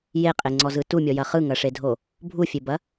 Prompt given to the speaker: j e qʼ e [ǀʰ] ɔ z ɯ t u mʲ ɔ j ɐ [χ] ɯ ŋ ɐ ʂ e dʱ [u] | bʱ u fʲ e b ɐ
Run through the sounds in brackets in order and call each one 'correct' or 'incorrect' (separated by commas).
incorrect, correct, incorrect